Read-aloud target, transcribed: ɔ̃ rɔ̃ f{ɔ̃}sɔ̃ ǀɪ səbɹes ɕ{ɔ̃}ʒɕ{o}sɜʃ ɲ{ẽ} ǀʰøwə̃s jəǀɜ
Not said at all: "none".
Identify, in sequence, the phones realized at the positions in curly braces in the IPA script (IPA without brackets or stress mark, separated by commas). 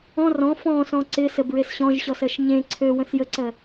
ɔ̃, ɔ̃, ɔ, ẽ